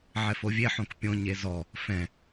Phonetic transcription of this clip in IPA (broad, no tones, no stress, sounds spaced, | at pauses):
ʕ ɛ f o vʲ e ħ õ k pʲ õ ɲ e z ɔ | f ɛ̃